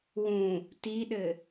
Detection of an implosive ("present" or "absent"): present